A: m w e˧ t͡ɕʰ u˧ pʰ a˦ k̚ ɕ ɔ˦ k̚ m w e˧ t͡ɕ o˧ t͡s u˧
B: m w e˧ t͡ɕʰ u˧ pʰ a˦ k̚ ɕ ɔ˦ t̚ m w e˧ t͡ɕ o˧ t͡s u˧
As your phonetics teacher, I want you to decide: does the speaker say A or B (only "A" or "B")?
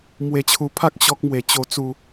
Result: A